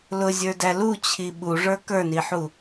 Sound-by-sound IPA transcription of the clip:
l ʊ zʲ ə˞ d æ l u t͡ɕʰ i ɓ u ʐ ə˞ k ə˞ n i ħ u

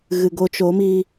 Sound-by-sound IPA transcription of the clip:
ɣ ɨ˨ ɡ o˧ t͡ʃ o˨˦ m i˧

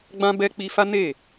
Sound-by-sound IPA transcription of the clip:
ɡ͡b ã˦ b ɛ˦ k͡p i˧ f a˦ n e˦˨

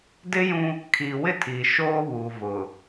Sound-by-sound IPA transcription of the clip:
d ɪ˦ j ũ˦ | kʰ iː˨ w ɪ˦ tʰ iː˨ ʃ oː˦ β u˨ v ʊ˨

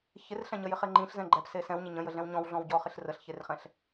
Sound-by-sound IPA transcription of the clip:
ç ɪ r ɬ ɛ̃ ɲ ə j ɪ χ e ŋ͡ǃ ĩ ɬ z ɛ̃ ɡ͡ǃ ɛ p s e s ɛ̃ w ɲ ɪ ɲ ə̃ j ə ɮ ɛ̃ w ɲ ɔ̃ w ɮ ɔ̃ w ɟ ɔ χ ɪ ɬ r ə ɬ ç e r χ ɛ̃ ɬ

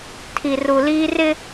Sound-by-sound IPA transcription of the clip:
tʰ i˨ r u˨ l iː˦ r ɪ˦

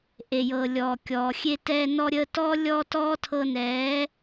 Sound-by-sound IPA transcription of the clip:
ʔ e˨ j ɤː˨ lʲ ɔː˨ kʲ ɔː˨ xʲ e˧ t ɛː˧ n ɔ˧ ɾʲ əː˧ t ɔː˦ lʲ ɔ˧ t ɔː˦ tʰ ɤ˧ n ɛː˨˦

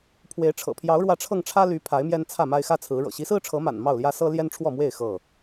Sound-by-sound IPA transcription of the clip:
pʰ w e˨˦ ɪ̯ ʈ͡ʂʰ ɤ̰˨˩ pʰ j ɑ˨˦ ʊ̯ ɻ w ä˨˦ ʈ͡ʂʰ ɤ˧ ŋ ʈ͡ʂʰ ä˦ l y˨˦ pʰ a˨˦ ɪ̯ m j ɛ˦ n t͡sʰ ä˥˨ m a˦ ɪ̯ x ä˦ t͡sʰ ɹ̩˨˦ ɻ ɤ̰˨˩ ɕ i˨˦ s ɹ̩˦ ʈ͡ʂʰ ɤ˨˦ m a̰˨˩ n m ɑ˥˨ ʊ̯ l j ä˦ s ɤ˦ l j ɛ˦ n ʈ͡ʂʰ w ɔ˥˨ m w e˥˨ ɪ̯ x ɤ˥˨

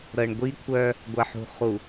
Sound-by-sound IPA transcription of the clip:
ɾ ɤ˨ ɳ ɡʷ i˦ kʷʰ œ˦ | ɡʷ ɜ˨ ħ ṳ˨ χ u˨

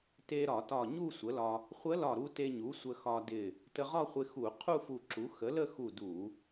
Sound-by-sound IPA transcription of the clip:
t e˧ ɾ ɒ˧˩˧ t ɒ˧˩ ɲ u˥˧ sʷ ə˩˥ l ɒ˧ | χʷ ə˧˥ l ɒ˧˩ ɾ u˧ t e˧ ɲ u˩˥ sʷ ə˧ x ɒ˧ d ɪ˧˩ | t ə˧ ʁ ɒ˥˧ χʷ ɪ˧ x u˧˩˧ qʰ u˥˧ f u˧˩ ǁ u˩˥ x ə˩˥ l ə˥˧ x u˧˩ d u˧˩˧

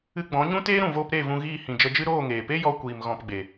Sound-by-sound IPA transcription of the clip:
ɨ˧ ɡ͡b ɔ̃˨˦ ɲ ũ˦ t eː˦ ɾ ũ˨ v oː˧ p ɾ e˦˨ v ũ˧ ɣ iː˦˨ h ĩ˨ d͡ʒ ə˧ d͡ʒ ɨ˦ ɾ oː˦˨ ŋ eː˨ p e˦ j ɔ˧ kʷ iː˨ m ɣ ɔ̃˧ p ɡ͡b e˨

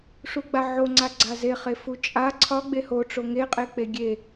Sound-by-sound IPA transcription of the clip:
ʂ u ɡ͡b a ʕ o ŋ͡ǀ a ɡ͡ǀ a z e χ e f u t͡ʃʼ a ǀʰ ɒ ɡ͡b e h o ʈ͡ʂ o ŋ e qʼ e k͡p e ɡʲ e

